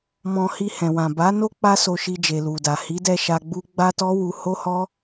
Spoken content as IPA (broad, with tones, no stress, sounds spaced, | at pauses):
m ɔ̃˧ h i˧ h ɛ̃˨ w ã˨ b a˨˦ n o˦ k͡p a˦ s o˧ ʃ i˧ d͡ʒ e˨ l u˨ d a˨ h i˨˦ d ɛ˧ ʃ a˧ ɡ͡b u˦ ɡ͡b a˦ t ɔ˦ w u˧ h o˦ h ɔ˦